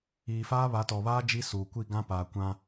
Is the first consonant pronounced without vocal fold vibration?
yes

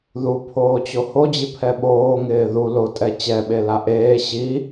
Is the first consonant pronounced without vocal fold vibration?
no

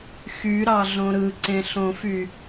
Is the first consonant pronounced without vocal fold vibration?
yes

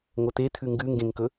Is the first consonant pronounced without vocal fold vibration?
no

